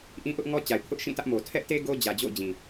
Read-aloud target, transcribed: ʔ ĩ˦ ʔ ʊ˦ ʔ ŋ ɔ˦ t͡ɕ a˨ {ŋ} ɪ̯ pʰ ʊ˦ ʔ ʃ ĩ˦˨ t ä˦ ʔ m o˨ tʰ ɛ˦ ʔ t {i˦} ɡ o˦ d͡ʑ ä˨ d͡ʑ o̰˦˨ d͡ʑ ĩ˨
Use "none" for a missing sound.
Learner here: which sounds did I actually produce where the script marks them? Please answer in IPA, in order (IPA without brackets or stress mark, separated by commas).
none, e˦